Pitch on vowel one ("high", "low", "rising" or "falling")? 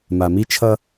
low